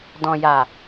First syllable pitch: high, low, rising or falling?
low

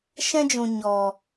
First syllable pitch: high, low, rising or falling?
high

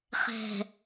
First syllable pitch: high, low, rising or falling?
low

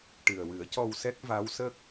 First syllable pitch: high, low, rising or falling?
low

